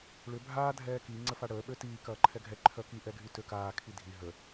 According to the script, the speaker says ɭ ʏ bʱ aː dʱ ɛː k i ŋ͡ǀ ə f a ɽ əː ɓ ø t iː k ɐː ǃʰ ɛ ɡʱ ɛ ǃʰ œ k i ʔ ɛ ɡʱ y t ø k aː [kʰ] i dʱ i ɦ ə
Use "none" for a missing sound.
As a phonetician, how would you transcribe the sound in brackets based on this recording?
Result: kʰ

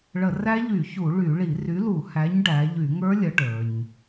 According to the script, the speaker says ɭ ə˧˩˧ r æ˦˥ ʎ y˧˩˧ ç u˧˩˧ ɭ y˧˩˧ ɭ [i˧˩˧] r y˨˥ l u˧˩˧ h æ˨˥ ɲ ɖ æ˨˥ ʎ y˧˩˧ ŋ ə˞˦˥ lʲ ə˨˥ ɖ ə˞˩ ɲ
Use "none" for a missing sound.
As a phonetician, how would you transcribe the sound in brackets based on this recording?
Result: i˧˩˧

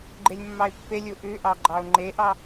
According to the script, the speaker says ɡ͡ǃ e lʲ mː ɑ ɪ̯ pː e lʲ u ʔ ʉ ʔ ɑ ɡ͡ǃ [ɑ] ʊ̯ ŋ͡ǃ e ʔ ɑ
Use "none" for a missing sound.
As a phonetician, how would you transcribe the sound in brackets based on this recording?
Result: ɑ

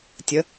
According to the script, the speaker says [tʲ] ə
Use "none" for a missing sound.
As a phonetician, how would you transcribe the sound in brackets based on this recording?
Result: tʲ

